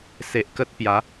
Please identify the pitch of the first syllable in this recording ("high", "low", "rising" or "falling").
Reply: low